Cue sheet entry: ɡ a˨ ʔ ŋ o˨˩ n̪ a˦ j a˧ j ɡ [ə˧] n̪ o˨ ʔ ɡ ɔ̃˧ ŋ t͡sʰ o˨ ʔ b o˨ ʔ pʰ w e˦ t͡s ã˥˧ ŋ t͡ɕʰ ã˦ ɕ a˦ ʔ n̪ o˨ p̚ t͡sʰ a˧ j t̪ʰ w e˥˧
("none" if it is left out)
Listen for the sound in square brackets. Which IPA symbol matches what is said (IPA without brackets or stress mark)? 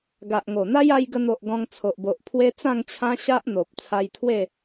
ə˧